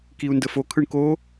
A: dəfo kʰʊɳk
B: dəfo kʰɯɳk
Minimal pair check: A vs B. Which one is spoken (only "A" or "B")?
B